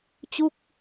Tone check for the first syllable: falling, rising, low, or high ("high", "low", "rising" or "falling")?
falling